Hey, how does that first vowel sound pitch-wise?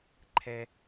low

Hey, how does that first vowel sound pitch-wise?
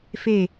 falling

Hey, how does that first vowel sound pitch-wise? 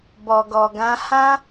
low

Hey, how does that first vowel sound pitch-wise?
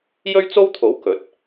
high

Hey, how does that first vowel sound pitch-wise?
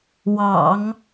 low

